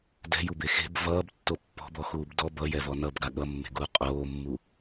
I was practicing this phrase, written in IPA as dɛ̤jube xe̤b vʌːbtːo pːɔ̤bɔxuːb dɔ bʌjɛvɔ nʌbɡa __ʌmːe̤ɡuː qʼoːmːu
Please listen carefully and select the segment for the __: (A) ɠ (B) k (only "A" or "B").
A